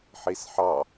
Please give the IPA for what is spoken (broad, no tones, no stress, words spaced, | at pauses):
ħisħɑ